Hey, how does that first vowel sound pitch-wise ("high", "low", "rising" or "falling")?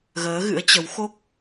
rising